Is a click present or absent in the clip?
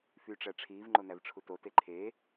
present